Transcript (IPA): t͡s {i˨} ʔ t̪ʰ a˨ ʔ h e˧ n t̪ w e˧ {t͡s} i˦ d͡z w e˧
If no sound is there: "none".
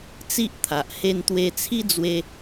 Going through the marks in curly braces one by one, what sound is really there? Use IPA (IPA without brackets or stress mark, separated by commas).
i˦, t͡sʰ